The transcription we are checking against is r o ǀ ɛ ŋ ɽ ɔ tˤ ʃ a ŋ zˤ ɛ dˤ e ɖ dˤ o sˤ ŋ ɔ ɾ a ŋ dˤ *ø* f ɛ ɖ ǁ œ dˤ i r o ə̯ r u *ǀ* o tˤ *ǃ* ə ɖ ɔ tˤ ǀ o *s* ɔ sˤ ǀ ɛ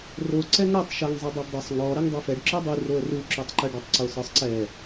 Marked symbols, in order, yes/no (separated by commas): yes, no, yes, yes